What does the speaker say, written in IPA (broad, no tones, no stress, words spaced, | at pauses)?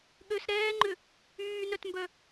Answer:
ɠøs ɾɛːŋ͡ǃʏ | yːnœtmbœ